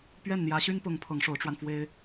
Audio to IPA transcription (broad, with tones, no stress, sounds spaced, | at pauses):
p ɥ ɛ˥˩ n n̪ j ä˧˥ ɕ y˥ n p ʊ˧˥ ŋ pʰ ɤ˧˥ ŋ ʂ o˧˥ ʊ̯ ʈ͡ʂ w a˧ n f w e˥ ɪ̯